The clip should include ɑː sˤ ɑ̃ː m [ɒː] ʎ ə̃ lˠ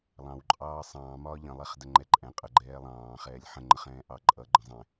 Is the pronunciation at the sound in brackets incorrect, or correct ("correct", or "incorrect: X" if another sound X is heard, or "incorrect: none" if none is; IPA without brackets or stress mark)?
correct